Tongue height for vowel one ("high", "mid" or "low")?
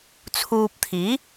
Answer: high